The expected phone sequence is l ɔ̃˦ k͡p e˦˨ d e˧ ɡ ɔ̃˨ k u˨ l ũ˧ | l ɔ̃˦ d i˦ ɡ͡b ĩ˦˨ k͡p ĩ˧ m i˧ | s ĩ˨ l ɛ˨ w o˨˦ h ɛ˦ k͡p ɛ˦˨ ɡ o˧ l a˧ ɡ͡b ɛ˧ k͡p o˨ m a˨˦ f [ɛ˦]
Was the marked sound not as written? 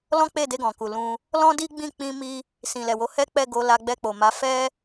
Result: no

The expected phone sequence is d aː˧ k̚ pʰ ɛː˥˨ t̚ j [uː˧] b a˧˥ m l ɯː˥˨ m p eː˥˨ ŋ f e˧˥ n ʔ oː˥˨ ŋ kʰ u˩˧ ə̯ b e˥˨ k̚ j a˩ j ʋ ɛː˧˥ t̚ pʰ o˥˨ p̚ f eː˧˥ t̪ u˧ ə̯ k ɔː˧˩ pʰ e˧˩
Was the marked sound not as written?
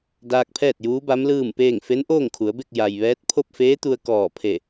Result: yes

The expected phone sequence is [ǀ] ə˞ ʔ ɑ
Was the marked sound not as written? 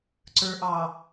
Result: no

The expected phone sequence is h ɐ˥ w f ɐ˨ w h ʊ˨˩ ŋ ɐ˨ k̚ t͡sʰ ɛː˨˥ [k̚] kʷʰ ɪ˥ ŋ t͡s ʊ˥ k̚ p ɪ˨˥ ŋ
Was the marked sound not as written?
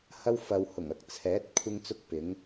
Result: yes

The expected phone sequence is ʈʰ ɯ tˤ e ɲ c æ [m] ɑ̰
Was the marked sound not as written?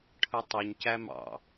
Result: no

